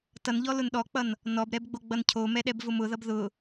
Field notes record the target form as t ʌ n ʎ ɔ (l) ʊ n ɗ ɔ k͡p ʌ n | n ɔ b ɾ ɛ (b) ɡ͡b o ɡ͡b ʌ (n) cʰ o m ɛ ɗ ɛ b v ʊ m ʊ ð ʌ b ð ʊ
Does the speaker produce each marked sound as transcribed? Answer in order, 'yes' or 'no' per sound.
yes, yes, yes

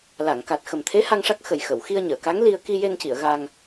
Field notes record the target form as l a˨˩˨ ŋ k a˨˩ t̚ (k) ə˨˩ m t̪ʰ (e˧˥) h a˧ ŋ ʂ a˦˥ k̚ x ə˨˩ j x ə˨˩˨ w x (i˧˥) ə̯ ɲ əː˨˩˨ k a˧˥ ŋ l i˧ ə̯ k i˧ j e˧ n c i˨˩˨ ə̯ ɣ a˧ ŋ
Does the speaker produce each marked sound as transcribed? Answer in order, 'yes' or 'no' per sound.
no, yes, no

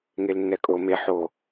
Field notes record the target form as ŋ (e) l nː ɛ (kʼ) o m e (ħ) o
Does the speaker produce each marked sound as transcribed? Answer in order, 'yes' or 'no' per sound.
yes, yes, yes

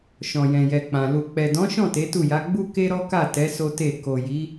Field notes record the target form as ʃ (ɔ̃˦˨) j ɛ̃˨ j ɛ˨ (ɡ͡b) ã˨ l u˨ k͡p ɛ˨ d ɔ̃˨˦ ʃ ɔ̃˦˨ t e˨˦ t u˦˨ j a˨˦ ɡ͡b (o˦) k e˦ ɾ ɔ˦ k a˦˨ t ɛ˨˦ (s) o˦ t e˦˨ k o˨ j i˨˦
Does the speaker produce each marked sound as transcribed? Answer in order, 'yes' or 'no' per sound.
no, no, no, yes

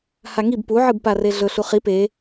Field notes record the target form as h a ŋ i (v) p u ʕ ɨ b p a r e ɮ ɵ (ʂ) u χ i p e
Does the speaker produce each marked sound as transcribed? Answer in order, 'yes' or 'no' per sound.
no, no

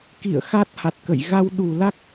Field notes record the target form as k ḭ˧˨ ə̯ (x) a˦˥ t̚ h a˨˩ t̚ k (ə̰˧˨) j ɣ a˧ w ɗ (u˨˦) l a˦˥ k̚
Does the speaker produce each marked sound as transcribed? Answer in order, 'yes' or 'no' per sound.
yes, yes, no

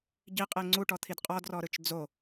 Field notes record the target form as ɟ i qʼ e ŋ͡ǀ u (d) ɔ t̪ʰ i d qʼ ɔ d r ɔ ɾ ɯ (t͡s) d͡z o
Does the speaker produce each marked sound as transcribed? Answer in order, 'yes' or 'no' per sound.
no, no

